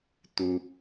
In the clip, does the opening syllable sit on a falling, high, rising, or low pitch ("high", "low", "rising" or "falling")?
low